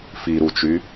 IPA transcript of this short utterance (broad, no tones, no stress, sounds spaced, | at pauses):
f i ɾ u t͡ʃ y